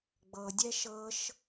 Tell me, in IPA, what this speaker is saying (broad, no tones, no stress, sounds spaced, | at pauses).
ɡ͡b ɤ dʲ ɛ ʃ ɤ ʃ